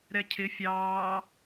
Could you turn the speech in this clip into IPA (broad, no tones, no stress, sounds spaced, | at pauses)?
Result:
ɾ ɛ cʰ ɪ fʲ ɑː